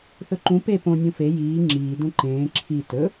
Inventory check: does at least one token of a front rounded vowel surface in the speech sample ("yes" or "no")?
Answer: no